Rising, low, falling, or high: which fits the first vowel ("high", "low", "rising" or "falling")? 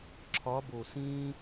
rising